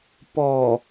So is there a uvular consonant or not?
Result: no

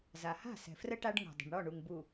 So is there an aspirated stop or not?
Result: no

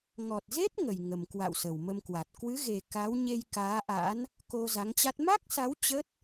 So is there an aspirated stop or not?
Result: no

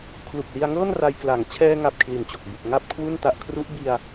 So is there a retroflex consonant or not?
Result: no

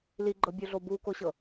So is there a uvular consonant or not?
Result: no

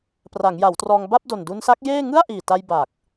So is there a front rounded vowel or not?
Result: no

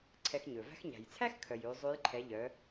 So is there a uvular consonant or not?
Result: no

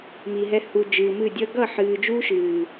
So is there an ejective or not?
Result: no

